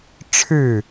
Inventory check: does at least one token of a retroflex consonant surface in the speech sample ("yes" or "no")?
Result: yes